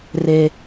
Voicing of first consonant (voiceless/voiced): voiced